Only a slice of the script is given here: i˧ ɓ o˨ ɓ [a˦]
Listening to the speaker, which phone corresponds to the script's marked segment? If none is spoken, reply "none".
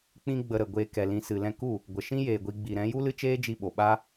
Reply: a˦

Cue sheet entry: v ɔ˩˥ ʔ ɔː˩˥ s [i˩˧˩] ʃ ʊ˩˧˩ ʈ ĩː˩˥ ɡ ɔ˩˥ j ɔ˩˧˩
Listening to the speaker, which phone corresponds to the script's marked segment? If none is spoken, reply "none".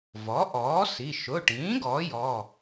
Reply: i˩˧˩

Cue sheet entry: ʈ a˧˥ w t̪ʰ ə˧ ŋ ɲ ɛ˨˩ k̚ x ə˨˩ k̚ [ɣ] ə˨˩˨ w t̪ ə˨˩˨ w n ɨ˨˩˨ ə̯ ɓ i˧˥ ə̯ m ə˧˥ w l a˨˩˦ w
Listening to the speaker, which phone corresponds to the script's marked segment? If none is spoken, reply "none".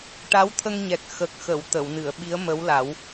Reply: x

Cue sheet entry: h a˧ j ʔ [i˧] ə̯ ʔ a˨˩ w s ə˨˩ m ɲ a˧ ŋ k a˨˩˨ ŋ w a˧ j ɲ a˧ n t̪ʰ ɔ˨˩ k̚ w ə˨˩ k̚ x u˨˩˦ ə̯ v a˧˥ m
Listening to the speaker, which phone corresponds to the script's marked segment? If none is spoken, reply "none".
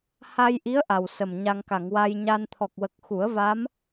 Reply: i˧˥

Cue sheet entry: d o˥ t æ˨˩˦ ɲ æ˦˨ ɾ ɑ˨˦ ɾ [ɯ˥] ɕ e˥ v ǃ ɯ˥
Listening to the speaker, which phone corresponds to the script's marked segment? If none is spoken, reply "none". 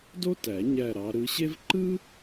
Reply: ɯ˨˦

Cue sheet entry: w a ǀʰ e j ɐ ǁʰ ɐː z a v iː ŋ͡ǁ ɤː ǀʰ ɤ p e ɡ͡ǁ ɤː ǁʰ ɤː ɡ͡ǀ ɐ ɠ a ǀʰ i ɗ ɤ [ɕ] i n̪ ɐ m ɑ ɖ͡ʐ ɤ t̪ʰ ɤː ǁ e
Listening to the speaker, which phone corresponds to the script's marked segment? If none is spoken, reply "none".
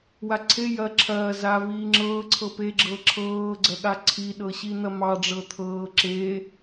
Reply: ɕ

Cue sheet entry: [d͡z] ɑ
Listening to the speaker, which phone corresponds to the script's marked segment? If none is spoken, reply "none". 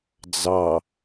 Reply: d͡z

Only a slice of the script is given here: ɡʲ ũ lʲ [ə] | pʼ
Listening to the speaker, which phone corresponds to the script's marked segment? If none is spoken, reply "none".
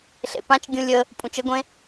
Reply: ə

